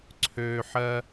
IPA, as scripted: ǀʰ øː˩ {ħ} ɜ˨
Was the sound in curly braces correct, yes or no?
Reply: yes